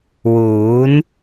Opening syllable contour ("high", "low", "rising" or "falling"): rising